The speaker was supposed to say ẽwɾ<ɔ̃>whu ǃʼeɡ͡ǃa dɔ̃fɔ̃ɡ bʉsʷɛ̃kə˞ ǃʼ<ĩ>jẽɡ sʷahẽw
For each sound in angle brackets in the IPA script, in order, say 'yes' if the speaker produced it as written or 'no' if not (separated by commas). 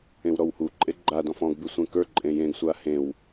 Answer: no, no